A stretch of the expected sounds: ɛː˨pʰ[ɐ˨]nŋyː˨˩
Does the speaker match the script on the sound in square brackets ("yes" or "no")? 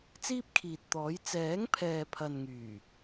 yes